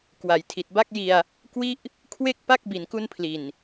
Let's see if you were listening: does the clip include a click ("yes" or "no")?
no